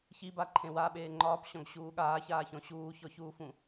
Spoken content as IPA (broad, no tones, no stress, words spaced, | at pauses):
çibaǃʰẽ waɓeː ŋ͡ǃɒːpɕɔ̃ɡɕuː ɠaːçaːçɔ̃ ɕuːçɔçuːfũ